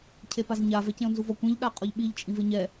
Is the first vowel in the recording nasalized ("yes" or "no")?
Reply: no